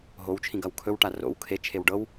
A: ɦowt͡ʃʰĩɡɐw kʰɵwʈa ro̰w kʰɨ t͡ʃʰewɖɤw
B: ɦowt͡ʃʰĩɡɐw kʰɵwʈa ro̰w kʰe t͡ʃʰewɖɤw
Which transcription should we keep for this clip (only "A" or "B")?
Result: B